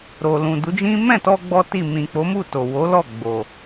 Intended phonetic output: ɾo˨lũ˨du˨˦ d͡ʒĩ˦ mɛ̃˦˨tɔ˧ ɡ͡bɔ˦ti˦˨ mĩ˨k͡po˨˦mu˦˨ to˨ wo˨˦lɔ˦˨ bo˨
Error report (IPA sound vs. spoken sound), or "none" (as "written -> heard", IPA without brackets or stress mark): b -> ɡ͡b